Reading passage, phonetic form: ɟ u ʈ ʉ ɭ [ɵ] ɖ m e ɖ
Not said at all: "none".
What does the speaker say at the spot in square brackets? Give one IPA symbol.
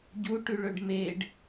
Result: ɵ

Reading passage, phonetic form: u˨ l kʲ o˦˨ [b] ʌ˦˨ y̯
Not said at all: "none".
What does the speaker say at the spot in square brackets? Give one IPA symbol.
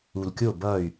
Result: b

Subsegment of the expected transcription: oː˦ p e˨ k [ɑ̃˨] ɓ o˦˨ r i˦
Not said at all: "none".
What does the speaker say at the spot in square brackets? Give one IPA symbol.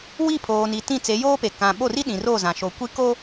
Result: ã˨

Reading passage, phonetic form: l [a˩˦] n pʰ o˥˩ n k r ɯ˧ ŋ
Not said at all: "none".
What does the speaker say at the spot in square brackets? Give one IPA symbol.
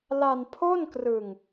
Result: a˧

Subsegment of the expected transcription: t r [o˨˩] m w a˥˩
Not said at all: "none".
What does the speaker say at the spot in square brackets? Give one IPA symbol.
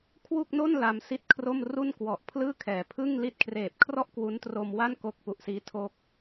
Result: o˧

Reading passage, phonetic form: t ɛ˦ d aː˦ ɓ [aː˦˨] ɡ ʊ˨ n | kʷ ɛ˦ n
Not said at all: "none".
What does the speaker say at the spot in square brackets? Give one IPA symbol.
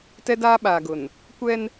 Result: aː˨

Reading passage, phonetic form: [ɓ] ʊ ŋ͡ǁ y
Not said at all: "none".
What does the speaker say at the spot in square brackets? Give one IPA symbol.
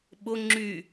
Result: ɓ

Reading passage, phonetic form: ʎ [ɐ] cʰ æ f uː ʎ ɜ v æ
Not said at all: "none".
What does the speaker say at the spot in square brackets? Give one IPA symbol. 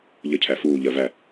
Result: ə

